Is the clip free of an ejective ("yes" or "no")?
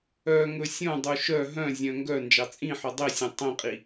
no